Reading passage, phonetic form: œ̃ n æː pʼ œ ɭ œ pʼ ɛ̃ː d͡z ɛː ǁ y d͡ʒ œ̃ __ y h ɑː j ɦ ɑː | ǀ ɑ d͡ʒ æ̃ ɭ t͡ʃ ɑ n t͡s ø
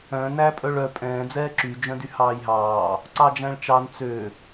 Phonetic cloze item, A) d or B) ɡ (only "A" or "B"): A